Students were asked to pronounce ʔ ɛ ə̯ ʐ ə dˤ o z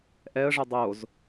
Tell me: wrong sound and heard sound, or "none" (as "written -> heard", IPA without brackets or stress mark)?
none